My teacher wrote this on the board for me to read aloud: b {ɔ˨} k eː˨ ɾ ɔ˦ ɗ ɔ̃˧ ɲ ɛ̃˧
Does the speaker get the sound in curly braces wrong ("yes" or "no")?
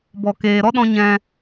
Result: no